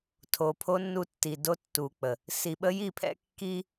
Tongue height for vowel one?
mid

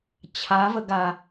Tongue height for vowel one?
low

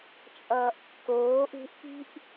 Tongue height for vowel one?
mid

